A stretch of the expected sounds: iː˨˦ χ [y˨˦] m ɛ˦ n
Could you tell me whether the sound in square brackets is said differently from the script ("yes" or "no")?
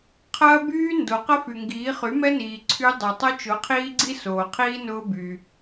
no